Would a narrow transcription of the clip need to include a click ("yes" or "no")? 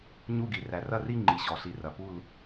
yes